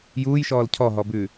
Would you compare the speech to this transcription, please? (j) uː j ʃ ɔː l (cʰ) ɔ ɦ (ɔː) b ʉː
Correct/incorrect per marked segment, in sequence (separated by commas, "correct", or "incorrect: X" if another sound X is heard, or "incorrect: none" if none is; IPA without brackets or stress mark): correct, correct, incorrect: ɔ